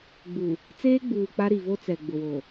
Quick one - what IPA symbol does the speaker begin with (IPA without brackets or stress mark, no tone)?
ɡ͡b